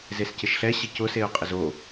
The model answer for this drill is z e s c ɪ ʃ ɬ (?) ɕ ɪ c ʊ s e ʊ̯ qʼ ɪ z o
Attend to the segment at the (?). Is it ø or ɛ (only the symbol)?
ɛ